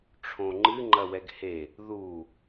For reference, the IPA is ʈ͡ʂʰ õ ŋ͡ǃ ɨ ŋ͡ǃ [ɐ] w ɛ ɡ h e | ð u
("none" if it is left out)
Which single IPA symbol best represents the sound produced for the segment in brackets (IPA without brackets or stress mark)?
ɐ